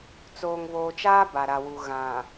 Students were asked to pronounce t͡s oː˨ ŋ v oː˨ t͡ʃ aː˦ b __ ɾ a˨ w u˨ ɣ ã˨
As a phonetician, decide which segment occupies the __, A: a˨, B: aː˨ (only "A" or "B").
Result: A